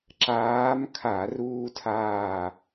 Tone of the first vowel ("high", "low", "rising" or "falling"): rising